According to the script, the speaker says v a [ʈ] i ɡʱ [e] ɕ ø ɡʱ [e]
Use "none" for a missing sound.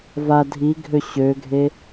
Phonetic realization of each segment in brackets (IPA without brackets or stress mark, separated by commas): dʱ, ø, e